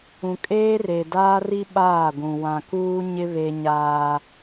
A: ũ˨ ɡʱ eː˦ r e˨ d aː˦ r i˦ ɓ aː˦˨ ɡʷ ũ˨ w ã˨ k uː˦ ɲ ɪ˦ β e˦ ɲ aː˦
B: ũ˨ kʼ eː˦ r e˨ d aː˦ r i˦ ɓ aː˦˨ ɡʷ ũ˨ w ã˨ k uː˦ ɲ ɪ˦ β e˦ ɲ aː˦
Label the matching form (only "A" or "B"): B